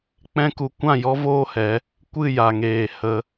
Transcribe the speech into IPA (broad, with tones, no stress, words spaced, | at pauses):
k͡pɛ̃˦ku˧ kʷã˦˨jɔ˦ voː˦hɛ˨˦ | kʷɨ˦˨ja˨ŋeː˨ hə˧